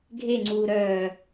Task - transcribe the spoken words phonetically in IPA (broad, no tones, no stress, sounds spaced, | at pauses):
ɡʱ e ŋ͡ǀ uː ɾ œː